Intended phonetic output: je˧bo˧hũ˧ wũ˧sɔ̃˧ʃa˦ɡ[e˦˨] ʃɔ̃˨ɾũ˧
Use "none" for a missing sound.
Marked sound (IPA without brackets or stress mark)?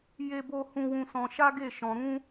e˦˨